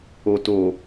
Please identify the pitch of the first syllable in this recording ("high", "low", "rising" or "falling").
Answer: low